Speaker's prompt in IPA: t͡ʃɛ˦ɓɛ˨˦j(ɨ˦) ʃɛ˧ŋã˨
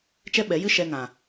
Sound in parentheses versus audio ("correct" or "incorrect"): correct